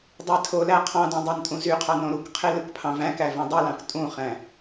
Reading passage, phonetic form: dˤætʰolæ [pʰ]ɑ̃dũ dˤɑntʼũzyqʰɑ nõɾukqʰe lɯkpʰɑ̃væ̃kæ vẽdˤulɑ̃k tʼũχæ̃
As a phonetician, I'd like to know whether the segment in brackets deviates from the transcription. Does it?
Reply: yes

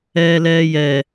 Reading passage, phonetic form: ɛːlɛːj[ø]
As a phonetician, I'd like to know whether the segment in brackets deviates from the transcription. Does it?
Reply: yes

